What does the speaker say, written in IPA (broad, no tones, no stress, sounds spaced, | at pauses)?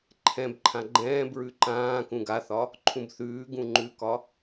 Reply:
ǃʰ ɛ̃ b ǃʰ ã ɡ͡ǃ ɛ̃ː b ɹ ʉ ǃ ãː k ũ ɡ a θ ɒ | ǃʰ ũ b θ ʉː ɡ ũ ŋ͡ǃ ʉ k ɒ